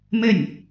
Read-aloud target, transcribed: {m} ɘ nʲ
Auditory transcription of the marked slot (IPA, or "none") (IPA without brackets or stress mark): m